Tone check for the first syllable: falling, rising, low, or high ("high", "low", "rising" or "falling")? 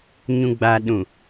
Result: low